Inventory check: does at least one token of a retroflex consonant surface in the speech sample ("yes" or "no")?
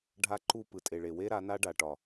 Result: yes